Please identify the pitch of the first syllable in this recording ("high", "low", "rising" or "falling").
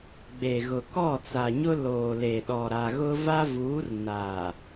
low